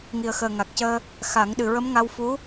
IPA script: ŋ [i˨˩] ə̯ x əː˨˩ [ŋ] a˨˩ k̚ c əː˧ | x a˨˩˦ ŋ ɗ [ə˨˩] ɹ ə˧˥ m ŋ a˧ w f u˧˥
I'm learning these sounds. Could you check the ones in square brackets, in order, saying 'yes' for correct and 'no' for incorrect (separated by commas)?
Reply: yes, yes, no